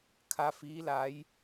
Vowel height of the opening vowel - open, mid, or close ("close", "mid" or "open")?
open